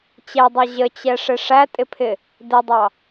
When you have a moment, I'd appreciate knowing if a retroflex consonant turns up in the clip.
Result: yes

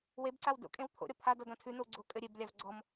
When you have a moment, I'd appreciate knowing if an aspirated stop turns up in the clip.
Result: yes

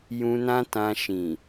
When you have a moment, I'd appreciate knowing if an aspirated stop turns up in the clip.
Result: no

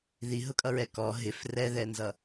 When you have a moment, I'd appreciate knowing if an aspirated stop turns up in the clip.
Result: no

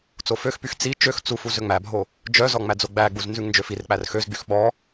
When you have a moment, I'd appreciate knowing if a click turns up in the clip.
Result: no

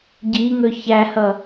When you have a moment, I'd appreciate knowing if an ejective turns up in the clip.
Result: no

